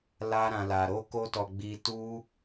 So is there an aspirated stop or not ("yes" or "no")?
no